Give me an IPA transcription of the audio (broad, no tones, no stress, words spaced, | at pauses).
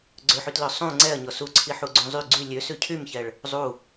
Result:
ɡ͡ǀøħytlœ sˤũ ŋ͡ǀɛɐ̯ɲɔ suǀʰiħuɡ͡ǀũ zˤy ɡ͡ǀy lʲøsʉ cʰymçɛɭ | zˤu